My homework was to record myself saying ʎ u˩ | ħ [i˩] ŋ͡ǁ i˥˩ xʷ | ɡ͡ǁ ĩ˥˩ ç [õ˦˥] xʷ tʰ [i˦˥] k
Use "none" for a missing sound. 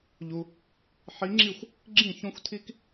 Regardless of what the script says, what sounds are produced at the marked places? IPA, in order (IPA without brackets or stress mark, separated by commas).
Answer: i˨˦, õ˦˥, i˦˥